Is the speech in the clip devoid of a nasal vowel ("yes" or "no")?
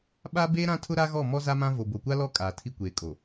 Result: no